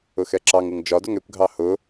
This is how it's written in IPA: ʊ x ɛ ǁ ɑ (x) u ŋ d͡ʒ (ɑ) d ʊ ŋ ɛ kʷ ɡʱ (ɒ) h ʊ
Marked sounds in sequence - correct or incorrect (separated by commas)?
incorrect, incorrect, incorrect